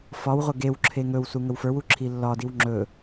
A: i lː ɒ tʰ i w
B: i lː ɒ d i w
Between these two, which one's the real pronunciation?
B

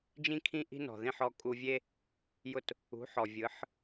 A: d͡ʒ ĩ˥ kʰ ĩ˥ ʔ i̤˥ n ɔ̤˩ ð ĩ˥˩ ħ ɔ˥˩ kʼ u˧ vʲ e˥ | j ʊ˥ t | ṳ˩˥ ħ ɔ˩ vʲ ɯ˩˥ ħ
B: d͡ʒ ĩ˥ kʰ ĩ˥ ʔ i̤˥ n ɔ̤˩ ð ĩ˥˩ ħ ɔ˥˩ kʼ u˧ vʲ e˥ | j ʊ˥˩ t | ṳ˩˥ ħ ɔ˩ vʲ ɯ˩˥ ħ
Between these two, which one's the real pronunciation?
B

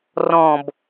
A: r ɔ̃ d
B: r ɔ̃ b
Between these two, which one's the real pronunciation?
B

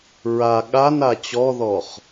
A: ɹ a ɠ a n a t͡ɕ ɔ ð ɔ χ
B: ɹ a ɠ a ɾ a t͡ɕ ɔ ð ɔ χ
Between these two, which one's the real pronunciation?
A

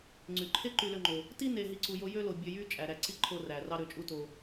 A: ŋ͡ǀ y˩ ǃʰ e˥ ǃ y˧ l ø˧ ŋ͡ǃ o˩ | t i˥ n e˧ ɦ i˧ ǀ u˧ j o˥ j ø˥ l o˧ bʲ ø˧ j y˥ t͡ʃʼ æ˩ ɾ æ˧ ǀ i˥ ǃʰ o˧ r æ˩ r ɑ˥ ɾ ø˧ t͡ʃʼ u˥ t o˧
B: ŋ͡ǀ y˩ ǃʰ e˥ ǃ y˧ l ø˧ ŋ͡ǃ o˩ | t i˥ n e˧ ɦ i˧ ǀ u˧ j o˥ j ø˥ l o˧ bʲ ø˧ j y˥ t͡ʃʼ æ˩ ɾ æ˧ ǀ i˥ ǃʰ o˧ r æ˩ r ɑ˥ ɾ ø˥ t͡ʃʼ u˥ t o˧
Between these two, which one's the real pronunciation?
A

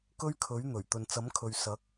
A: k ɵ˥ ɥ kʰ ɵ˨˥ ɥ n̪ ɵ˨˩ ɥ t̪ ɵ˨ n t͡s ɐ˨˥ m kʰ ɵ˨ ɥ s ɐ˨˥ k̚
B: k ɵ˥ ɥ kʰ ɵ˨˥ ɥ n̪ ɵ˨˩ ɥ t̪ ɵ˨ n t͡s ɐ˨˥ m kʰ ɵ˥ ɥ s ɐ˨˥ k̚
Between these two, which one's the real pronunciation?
A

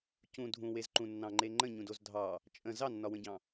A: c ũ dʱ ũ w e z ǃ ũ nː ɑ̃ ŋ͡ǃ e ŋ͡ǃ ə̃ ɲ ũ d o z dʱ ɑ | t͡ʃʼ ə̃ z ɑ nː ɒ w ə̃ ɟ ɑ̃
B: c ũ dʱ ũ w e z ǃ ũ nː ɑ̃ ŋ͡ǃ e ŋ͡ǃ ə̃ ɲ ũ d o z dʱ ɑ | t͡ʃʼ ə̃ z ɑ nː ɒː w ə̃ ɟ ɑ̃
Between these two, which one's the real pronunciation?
A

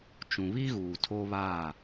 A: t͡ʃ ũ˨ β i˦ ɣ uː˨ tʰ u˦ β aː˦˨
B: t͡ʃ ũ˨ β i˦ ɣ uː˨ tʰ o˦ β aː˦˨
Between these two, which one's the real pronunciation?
B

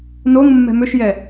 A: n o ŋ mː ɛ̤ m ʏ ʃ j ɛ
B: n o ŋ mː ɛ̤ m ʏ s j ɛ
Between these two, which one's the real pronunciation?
A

